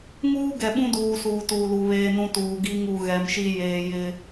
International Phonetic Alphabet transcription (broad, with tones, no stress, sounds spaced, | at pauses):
ŋ uː˦ ɡ ɛ˨ ɓ ũ˦ d uː˨ s uː˨ t uː˨ l u˨ β eː˦ n ũ˦ t uː˨ ɡ i˦ ŋ u˨ ɣ ɛ˨ m ʃ i˦ j eː˨ j ɪ˦